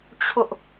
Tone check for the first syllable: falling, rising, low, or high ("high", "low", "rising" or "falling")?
high